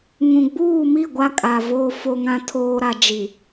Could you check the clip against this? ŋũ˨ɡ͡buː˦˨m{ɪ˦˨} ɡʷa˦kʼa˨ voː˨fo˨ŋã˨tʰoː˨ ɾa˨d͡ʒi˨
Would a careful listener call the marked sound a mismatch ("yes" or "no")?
yes